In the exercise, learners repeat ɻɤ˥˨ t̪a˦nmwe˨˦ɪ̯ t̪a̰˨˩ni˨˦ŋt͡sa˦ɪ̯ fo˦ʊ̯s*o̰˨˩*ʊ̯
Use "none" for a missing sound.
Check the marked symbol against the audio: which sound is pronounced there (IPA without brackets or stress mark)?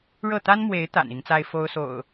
o̰˨˩